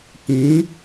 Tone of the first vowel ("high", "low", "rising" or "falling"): rising